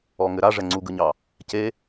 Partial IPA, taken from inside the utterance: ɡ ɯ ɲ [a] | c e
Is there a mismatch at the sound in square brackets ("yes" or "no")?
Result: yes